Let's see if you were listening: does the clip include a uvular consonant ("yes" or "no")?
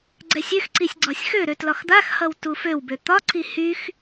no